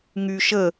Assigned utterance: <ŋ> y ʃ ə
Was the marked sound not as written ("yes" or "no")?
no